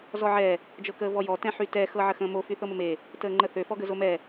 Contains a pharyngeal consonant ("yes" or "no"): yes